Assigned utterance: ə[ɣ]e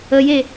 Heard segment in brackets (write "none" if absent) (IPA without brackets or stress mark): j